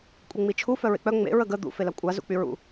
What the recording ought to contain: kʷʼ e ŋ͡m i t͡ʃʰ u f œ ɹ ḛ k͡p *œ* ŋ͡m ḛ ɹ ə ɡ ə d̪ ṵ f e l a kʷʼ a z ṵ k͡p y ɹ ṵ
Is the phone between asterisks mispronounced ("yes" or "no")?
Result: no